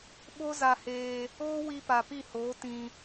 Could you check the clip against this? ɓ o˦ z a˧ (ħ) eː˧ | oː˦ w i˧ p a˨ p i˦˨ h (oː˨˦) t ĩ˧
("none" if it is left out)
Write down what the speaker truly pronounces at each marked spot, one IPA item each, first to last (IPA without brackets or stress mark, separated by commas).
h, oː˨˦